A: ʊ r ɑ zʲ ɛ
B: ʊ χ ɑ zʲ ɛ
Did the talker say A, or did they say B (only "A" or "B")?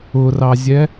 A